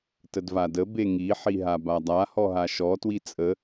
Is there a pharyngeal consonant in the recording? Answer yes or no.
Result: yes